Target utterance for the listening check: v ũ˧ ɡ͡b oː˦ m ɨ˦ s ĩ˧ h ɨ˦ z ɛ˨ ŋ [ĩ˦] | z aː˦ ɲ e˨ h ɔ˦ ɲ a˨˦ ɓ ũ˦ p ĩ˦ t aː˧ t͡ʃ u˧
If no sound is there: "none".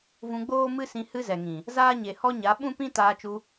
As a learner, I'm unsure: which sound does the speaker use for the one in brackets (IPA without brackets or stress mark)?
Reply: ĩ˨